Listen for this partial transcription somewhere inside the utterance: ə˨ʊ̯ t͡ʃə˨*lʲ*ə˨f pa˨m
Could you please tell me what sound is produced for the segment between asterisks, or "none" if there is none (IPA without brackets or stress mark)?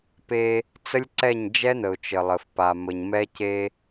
lˠ